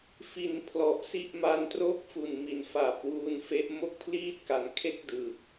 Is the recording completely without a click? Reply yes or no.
yes